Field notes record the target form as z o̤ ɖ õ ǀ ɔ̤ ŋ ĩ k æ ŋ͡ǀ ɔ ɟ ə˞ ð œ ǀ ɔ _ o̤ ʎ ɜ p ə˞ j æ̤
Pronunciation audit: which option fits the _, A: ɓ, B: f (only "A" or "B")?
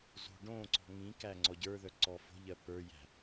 B